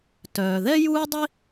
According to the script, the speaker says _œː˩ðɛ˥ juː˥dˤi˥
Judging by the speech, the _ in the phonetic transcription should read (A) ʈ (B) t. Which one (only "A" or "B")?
B